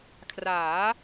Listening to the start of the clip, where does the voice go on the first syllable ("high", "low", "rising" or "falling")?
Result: rising